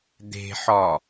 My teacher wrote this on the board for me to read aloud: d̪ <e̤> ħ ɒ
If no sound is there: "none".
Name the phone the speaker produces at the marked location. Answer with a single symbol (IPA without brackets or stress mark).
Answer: e̤